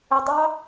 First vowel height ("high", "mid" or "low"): high